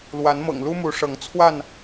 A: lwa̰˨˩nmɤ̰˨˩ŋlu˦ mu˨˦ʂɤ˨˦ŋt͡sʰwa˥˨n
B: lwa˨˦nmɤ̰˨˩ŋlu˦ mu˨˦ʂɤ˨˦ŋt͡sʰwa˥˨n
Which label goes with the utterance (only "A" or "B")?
B